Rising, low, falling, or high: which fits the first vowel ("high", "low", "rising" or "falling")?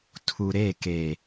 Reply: low